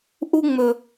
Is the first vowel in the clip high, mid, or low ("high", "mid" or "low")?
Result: high